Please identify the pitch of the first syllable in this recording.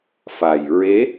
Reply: low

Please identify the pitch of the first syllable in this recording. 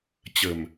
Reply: low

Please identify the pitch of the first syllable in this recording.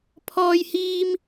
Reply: high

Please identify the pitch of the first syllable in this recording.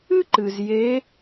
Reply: high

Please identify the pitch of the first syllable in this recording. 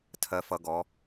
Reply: low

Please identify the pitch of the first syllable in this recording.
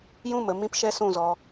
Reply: falling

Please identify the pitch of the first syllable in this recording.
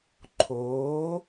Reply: rising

